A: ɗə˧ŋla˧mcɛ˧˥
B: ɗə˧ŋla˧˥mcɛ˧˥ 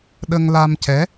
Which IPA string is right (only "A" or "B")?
A